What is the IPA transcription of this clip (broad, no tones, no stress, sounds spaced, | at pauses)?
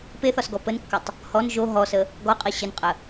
p e θ ɒ s ɡ ɔ p ə n kː ɘ tˤ | h ɔ n ʒ o ɦ ɔ s ə | ɡ ɔ qʼ i ɕ ɘ n qʼ ə